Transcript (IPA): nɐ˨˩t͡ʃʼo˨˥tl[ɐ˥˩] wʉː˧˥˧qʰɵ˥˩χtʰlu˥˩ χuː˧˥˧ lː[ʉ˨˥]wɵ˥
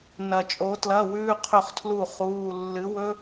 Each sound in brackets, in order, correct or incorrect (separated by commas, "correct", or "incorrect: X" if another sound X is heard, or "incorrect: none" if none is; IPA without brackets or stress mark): incorrect: ɐ˧˥˧, incorrect: ɨ˨˥